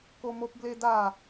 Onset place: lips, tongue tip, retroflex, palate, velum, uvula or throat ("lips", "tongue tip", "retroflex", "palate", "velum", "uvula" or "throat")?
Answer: velum